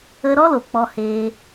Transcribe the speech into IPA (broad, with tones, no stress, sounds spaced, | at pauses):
ə˧ ɾ ɔ˦ l o˨ k͡p ɔ˧ h eː˧